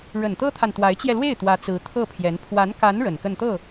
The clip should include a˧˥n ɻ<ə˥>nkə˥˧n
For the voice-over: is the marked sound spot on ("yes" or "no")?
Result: no